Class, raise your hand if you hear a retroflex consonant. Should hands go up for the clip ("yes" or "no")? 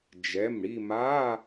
yes